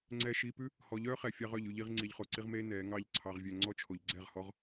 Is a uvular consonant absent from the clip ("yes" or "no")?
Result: no